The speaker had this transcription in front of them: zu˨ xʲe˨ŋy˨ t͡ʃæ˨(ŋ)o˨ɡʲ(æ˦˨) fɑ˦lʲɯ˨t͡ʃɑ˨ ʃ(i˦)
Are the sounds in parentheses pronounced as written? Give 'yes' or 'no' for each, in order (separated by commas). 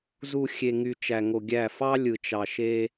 yes, yes, no